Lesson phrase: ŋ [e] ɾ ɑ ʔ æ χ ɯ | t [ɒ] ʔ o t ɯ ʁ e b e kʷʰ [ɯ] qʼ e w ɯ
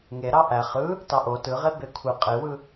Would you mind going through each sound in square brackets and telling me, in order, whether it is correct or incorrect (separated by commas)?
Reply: correct, incorrect, correct